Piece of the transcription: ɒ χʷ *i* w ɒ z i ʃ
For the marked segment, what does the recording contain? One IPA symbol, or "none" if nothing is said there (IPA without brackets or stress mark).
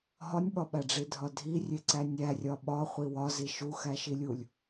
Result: i